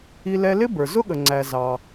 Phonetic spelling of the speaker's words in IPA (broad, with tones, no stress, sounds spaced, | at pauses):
i˧ l ɛ˧ l ɪ˥ b ə˞˩ z ʊ˥ ɠ ə˩ ŋ͡ǀ æ˩ z ɑ˩